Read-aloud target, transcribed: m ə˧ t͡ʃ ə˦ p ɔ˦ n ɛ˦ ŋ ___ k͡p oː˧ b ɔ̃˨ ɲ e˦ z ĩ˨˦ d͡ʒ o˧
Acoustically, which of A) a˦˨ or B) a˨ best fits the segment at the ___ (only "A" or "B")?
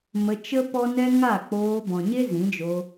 A